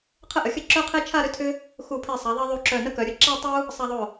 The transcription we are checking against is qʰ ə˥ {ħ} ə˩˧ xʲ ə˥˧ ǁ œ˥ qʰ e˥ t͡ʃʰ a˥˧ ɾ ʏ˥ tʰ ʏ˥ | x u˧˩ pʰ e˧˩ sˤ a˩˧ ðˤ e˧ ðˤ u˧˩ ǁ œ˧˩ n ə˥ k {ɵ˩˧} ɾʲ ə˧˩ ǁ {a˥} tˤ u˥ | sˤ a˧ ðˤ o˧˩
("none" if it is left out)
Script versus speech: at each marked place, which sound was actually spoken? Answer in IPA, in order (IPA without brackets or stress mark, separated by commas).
ʔ, œ˩˧, a˥